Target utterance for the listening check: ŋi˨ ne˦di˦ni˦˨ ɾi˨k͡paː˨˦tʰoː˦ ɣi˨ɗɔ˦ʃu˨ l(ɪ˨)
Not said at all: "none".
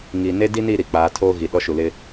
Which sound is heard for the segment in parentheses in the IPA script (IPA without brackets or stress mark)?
ɪ˦